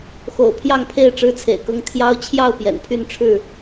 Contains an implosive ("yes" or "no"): no